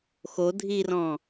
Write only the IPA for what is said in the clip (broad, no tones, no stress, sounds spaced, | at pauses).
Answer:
x o dʱ i r ɔ̃